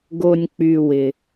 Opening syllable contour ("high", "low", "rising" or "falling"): low